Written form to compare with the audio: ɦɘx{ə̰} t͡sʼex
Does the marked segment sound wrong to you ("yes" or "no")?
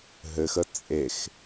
yes